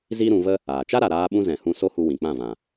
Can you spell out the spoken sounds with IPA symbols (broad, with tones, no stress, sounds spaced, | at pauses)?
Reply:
z i˦ ɾ ũ˧ v ə˦ | aː˨ t͡ʃ a˦ ɾ a˨ ɾ aː˧ ɓ ũ˧ z ɛ̃˨ h ũ˧ s o˦ h u˧ w ĩ˨ k͡p ã˦˨ v ã˨